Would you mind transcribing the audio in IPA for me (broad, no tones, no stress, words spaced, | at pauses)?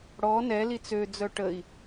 ɽɔ nɛ lit͡sød͡zœ ʈəi̯